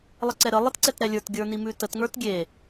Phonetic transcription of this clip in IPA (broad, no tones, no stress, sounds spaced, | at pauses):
lˠ ə ǀ ɛ ɾ ə lˠ e t ǀ ɛ t ɾ ɛ lʲ ə˞ t ɡʲ ə˞ n i m ʉ t ə t ŋ ə˞ t ɡʲ e